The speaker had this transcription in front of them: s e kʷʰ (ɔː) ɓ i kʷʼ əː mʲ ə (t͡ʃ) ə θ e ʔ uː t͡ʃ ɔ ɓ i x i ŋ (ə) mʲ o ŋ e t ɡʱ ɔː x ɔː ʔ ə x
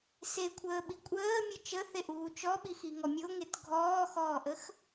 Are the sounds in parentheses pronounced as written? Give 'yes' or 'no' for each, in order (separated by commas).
no, yes, no